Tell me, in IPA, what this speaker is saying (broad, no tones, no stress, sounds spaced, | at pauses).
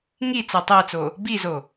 ŋ i t͡s æ tˤ æ t͡s o | b i z o